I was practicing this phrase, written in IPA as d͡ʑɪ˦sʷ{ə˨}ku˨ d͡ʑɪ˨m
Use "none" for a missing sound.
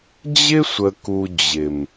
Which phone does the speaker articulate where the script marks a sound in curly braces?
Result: ə˨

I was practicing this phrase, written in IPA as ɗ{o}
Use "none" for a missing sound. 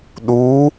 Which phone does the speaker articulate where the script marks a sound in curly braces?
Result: u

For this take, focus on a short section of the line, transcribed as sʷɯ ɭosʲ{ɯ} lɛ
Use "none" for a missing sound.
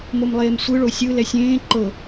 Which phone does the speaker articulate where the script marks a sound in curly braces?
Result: ɯ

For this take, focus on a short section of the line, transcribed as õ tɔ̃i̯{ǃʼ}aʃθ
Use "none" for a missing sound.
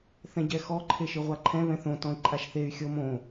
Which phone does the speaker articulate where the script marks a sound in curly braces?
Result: ǃʼ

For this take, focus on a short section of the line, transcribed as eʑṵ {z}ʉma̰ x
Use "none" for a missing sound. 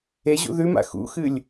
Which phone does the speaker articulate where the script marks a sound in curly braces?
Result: ð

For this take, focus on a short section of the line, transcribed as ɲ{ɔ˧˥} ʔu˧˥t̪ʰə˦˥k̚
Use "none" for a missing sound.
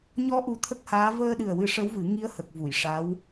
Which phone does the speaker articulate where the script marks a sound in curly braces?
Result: ɔ˧˥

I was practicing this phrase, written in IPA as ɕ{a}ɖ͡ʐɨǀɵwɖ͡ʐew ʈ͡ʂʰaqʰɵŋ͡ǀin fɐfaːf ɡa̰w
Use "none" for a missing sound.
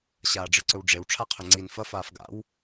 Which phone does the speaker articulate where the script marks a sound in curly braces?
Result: aː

